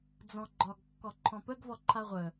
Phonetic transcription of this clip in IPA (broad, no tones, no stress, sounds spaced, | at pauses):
d͡z ɔ̃ ɡ͡ǃ ɒ ɡ kː ɔ ǃʰ ɔ̃ p ə ɡ v ɔ ǃʰ a ʁʷ ə